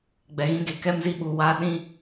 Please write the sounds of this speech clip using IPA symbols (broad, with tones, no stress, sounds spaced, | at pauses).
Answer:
ɡ͡b ɛ˨ ɣ ĩ˧ ɡ e˨ k ɛ˦ m z i˧ ɓ u˨ w aː˧ ɗ ĩ˧